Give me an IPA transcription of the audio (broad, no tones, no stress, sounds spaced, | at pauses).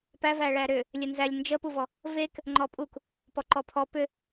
p æ v æ ɭ æ ɾ ʏ | lʲ e n z æ lʲ n d͡ʒ ə p u v ɔ | v e k | ŋ͡ǃ ɔ pʼ u k | p ɔ ǃ ɔ pʰ ɔ p ʏ